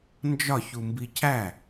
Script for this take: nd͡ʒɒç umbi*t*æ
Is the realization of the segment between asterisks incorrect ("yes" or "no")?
yes